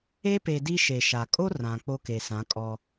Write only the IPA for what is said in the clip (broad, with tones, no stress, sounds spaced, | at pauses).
e˦ p e˨ d i˦ ʃ e˨ ʃ a˨ kʼ o˦ r ã˨ k͡p o˦ k e˨ s ã˨˦ kʼ ɔ˦